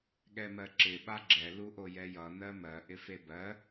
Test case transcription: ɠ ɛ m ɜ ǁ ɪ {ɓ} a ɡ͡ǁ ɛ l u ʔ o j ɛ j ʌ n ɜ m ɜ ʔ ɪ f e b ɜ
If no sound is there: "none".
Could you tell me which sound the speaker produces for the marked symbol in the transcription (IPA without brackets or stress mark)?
ɓ